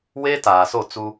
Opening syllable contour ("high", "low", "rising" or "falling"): high